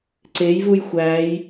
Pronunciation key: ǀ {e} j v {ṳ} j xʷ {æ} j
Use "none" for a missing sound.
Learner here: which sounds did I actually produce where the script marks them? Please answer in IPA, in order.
e, u, æ

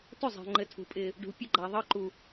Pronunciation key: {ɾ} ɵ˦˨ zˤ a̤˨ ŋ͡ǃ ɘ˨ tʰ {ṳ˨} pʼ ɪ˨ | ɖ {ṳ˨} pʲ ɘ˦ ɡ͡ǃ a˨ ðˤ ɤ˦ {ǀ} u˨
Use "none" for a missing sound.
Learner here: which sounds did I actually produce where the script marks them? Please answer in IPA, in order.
t, ṳ˨, ṳ˨, ǃ

